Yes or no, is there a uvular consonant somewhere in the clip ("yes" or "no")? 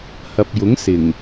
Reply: no